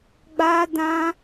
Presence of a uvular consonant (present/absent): absent